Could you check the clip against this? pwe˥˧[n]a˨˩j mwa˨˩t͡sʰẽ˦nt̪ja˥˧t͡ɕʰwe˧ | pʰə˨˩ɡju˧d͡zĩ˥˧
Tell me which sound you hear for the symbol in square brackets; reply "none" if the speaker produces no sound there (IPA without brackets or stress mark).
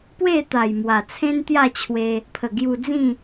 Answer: t̪